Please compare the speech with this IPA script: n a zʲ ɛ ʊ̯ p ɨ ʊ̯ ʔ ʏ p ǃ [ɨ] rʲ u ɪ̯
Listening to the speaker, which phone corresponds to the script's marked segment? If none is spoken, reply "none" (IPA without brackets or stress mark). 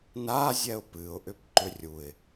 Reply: ʏ